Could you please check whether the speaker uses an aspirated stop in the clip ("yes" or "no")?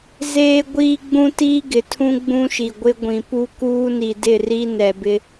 yes